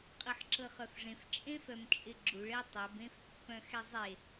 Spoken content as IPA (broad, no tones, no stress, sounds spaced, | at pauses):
qʼ ɤ ħ ǁ ɤ χ œ f ʐ ẽ f t͡ʃʼ ẽ f œ m t͡ʃʼ ɪ ɡ͡ǁ u ɭ ɛ tˤ ɛ b ẽ f pː œ̃ x ɛ zˤ e